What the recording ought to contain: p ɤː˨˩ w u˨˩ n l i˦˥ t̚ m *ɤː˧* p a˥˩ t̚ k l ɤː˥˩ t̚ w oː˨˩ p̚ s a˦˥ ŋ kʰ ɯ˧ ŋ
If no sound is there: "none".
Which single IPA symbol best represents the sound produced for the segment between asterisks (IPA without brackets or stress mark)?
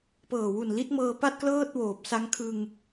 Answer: ɤː˧